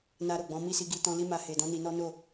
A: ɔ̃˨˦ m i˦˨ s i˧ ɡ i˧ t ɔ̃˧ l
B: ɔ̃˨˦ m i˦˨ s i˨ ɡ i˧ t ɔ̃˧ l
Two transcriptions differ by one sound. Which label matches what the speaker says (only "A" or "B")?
A